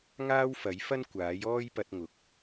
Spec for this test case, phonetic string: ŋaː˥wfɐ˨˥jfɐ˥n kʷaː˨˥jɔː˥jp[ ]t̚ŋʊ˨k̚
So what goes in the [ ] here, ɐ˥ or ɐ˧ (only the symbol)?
ɐ˧